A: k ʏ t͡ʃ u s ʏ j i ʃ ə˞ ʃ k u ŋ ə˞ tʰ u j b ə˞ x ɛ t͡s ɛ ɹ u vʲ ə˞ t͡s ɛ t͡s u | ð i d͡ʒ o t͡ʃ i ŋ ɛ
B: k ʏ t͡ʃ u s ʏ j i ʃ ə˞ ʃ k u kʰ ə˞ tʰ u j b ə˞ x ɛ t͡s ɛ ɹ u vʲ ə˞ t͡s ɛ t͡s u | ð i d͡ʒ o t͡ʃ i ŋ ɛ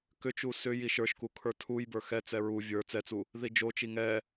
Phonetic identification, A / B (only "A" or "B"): B